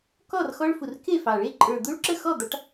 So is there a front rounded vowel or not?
no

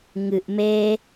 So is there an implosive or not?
no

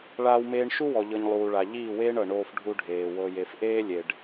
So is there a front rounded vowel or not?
no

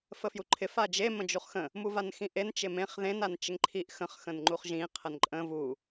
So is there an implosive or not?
no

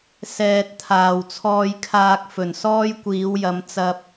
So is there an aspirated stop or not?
yes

